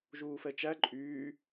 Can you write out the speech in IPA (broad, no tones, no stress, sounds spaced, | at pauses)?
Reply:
ʒ uː f ɛ t͡ʃ æ ǃʼ yː